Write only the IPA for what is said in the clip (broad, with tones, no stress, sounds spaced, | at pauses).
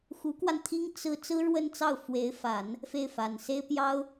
x u˧˥ k w a˧ n t̪ʰ i˥ ŋ t͡s ɹ̩˥ t͡s ɹ̩˥ ɻ w ə˥˧ n t͡s ɑ˥˩ ʊ̯ f w e˧˥ ɪ̯ f a˨˩˦ n | f e˥˩ ɪ̯ f a˨˩ n s e˥ ɪ̯ p j ɑ˥ ʊ̯